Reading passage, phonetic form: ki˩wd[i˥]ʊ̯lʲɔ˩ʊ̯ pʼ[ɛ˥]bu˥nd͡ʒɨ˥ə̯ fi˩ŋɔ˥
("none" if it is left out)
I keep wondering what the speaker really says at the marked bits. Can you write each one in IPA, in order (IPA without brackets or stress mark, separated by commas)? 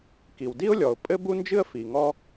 i˥, ɘ˥